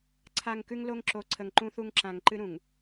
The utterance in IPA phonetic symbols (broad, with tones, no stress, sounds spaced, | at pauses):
ǀʰ a˨ ŋ k ʉ˦ ŋ l o˦ ŋ ǁ o˨ ǀʰ ə˨ ŋ ǃ ũ˦ θ u˦ ŋ ǁ ã˨ ŋ ǃ ɨ˦ ɾ ũ˨ ŋ